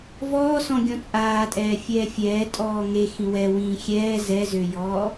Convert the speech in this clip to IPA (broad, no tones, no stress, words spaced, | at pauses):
vɔːsɔ̃ ɡʲɔ̃t͡sʼaːtʼɛː fʲɛːfʲɛː tʼɔːŋe xĩwɛ wĩːxʲɛː zɛzøjɔː